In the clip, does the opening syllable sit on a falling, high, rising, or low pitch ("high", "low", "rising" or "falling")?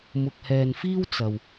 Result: low